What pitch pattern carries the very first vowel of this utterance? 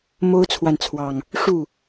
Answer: high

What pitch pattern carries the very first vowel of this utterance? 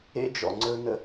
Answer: high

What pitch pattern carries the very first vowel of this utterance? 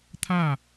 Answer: falling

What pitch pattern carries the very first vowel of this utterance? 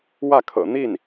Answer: falling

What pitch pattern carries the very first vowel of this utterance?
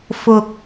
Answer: low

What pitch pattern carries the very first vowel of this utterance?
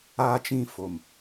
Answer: high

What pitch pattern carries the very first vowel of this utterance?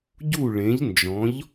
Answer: falling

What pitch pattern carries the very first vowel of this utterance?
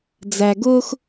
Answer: low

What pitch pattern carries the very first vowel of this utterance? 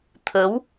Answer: rising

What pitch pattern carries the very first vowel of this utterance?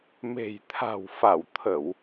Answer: low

